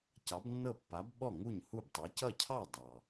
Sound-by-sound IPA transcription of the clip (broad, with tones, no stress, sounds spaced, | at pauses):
c ɑ˨˥ b nː ɤ˥˩ pː a˨˥ b ɓ ɔ˥˩ ŋ u˥˩ ɲ h u˥˩ b tˤ ɛ˨˥ c ʌ˥˩ cʰ ɑ˥˩ dˤ ɑ˩